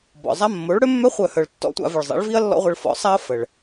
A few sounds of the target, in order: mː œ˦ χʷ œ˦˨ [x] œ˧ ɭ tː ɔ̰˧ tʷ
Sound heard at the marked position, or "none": h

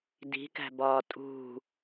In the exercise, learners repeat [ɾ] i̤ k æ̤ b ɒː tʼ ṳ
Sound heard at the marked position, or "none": d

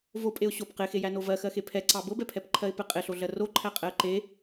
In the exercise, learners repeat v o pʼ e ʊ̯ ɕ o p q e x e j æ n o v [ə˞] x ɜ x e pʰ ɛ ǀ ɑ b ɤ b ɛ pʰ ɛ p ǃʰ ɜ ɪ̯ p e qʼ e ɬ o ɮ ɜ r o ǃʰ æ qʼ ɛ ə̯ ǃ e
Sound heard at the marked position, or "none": ɜ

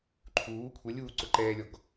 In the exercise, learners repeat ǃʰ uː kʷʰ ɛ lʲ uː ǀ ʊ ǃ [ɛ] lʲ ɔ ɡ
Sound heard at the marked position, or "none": ɛː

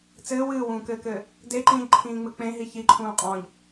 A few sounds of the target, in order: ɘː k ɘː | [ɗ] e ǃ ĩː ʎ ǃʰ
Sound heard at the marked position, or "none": d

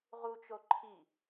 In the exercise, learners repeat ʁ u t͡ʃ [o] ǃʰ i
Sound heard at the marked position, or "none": o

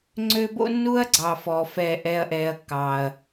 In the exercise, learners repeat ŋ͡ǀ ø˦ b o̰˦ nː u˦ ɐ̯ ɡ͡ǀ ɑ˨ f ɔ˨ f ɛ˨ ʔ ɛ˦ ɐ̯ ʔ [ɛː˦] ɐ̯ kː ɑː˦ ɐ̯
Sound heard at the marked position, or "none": ɛː˦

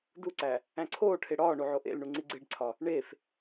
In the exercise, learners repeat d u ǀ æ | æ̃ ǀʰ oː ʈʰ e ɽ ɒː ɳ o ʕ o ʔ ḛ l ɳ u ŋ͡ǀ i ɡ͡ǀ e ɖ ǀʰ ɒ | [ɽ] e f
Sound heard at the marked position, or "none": ɳ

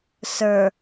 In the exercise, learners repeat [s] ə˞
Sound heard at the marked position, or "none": s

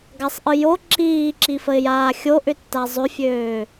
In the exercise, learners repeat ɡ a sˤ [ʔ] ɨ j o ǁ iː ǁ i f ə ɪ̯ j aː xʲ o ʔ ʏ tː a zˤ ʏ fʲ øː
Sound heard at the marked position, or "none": ʔ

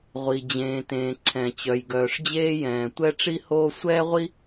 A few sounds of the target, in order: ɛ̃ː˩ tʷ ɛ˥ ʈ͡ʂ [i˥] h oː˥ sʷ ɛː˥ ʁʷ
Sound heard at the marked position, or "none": i˥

